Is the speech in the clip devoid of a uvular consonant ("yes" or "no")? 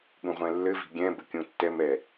no